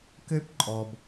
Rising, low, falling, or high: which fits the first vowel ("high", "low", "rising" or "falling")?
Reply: high